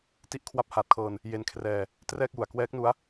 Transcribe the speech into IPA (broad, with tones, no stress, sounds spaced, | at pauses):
t i˦˥ ʔ kʰ w a˦˥ p̚ h aː˨˩ t̚ kʰ ɤː˧ n | j e˧ n kʰ r ɛː˧ | t r ɛː˥˩ k̚ j u˨˩ a̯ k w ɛː˦˥ k̚ n u˦˥ a̯